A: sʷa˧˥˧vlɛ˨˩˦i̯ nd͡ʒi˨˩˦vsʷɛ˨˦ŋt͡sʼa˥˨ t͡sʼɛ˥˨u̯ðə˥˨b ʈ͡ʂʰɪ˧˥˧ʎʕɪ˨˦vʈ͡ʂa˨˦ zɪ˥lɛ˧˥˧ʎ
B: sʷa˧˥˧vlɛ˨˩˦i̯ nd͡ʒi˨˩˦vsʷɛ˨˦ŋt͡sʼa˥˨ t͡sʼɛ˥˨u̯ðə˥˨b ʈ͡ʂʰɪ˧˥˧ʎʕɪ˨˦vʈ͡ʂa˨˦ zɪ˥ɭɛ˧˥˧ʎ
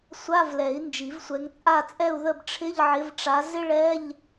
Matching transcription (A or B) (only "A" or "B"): B